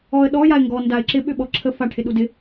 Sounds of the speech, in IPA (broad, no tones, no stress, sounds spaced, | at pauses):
ɔ ə̯ ɗ ɔ j a ɪ̯ ŋ ɡ ɔ n d a ɪ̯ ǁ ɪ ɓ ʏ ɓ ɔ ǁʰ ə f a ʈʰ ɪ ɗ u d ɪ